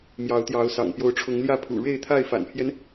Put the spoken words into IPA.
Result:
mjɑ˨˦ʊ̯t̪jɑ˨˦ʊ̯sɑ̰˨˩ŋ pjo˨˦ʊ̯ʈ͡ʂʰʊ˨˦ŋljä˥˨pʰṵ˨˩ ɻe˥˨ɪ̯t̪ʰa˥˨ɪ̯fa̰˨˩npʰjɛ˦n

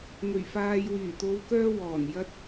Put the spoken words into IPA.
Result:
ŋɵ˨˩ɥfaː˨j wyː˨˩t̪o˨˧wkœː˧ wɔː˨˩n jɐ˧t̚

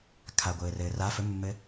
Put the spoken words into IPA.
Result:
kʰaɡʷɘːrɘː ra fɵmːɘ

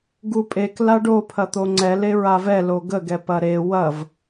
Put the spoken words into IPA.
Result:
ɡupʼek laɖo pʰɐt̪oŋ͡ǀɛ leɹavɛ loɡə ɡɛpɐɾe wɐv

